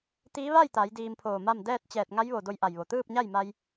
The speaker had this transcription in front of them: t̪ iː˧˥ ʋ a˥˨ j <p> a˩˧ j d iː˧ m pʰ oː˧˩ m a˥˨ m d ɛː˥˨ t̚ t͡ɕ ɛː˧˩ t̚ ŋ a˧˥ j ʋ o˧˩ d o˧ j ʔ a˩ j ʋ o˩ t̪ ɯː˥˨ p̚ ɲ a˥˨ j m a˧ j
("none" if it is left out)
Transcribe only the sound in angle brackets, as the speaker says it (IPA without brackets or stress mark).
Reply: t̪